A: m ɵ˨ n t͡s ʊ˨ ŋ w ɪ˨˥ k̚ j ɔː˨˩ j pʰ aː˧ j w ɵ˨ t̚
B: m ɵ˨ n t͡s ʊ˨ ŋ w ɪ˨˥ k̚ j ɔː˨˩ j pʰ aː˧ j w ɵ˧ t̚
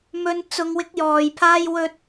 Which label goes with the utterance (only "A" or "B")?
A